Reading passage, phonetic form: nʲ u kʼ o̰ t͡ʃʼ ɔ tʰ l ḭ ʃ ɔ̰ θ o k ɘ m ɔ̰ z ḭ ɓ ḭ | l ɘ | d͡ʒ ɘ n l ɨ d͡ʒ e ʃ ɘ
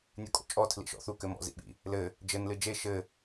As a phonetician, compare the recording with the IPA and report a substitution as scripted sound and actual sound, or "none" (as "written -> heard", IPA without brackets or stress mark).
o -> u